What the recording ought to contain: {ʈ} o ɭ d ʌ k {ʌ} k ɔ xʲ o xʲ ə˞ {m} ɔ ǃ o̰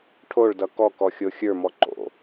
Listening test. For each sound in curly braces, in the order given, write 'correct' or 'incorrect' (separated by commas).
incorrect, incorrect, correct